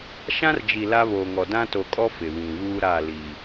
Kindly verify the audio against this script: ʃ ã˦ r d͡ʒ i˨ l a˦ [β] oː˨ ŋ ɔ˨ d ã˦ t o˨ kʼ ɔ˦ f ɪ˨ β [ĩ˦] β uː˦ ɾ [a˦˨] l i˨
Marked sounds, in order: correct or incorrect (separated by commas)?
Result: correct, incorrect, correct